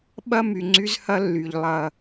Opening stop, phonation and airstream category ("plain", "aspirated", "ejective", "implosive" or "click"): implosive